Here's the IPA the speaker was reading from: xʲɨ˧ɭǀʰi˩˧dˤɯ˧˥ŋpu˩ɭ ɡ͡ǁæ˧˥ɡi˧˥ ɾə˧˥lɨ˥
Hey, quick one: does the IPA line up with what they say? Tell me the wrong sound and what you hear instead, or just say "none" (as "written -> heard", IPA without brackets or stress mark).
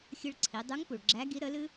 ɯ˧˥ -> u˧˥